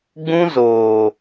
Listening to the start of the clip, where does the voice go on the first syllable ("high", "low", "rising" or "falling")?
high